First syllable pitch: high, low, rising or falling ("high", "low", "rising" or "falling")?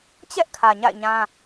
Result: high